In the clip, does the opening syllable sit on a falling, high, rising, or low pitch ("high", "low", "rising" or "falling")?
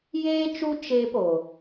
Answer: high